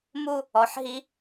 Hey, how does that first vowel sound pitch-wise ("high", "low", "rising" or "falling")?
falling